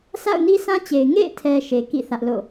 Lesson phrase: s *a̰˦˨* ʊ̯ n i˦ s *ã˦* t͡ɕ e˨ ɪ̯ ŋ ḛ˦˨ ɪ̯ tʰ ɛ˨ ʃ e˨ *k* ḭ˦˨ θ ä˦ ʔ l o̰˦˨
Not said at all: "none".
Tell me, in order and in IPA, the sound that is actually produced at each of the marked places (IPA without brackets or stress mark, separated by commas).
a̰˦˨, ã˦, k